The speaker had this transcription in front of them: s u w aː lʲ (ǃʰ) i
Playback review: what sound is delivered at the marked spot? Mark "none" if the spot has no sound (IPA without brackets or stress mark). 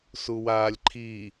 ǃʰ